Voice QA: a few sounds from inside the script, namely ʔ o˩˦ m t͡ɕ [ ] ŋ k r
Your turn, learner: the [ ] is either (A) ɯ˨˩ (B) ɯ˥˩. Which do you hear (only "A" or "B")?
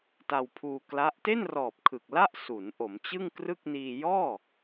B